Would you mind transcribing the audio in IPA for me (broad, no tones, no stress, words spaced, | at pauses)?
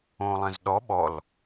õːlˠɛ̃zɗɔ ɓɔl